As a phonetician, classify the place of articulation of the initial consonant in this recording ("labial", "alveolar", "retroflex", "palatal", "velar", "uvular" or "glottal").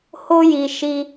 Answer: glottal